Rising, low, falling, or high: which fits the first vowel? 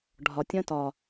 low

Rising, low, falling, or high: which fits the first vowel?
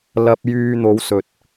low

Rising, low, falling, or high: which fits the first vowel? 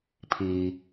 low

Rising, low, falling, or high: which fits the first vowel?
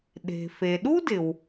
low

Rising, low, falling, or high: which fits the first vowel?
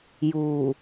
low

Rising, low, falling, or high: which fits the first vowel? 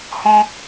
high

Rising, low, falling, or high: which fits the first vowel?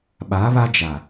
rising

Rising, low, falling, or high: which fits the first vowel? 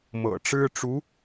low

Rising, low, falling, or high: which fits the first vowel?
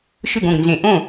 falling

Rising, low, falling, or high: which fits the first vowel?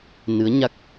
rising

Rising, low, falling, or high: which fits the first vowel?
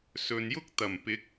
low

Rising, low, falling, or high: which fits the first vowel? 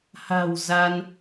low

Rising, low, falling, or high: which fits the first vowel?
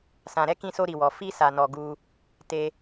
low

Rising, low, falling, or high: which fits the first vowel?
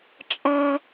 high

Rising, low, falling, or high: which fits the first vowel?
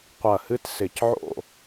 falling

